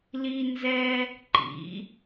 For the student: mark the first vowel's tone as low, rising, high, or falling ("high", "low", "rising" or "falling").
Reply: high